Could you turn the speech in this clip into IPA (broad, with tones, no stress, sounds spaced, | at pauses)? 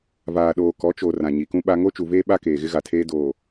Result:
v aː˨ ɗ oː˨ k ɔ˨˦ t͡ʃ o˨ r ã˨ ɲ i˨ k ũ˦ ɓ a˦ ŋ o˦ t͡ʃ u˨ v eː˦ ɓ a˦ k eː˨ ɣ ɪ˦ ɣ a˨ tʰ eː˦ d oː˨